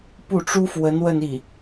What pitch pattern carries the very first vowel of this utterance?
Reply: falling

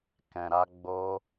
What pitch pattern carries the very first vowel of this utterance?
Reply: low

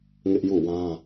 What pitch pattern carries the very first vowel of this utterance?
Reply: high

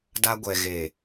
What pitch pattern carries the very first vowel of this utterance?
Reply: high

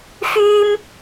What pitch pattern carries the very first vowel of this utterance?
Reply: high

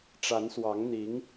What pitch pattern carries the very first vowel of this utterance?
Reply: rising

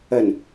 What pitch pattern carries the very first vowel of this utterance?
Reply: low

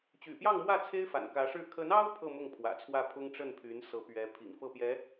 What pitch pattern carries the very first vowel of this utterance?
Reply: low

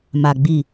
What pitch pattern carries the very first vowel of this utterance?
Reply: low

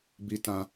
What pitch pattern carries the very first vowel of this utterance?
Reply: high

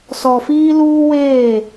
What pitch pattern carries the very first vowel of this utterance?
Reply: low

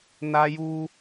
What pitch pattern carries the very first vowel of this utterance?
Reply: high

